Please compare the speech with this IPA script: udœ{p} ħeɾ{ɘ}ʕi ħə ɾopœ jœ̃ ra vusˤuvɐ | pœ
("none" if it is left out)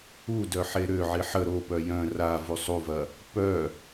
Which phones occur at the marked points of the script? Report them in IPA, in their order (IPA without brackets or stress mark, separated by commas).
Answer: none, ø